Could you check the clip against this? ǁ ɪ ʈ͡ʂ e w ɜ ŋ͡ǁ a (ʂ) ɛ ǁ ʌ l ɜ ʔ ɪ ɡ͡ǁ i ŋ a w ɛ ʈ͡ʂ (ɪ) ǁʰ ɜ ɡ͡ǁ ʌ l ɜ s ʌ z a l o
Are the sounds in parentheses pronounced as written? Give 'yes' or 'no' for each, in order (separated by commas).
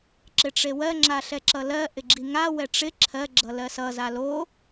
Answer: no, yes